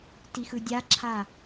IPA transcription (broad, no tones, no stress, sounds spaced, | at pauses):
t i x ɯ dʲ a ǁʰ a